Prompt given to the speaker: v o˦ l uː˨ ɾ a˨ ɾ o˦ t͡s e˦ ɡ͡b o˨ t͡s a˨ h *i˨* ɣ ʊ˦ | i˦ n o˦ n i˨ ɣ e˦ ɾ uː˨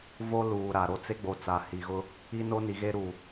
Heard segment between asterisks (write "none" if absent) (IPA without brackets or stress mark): i˨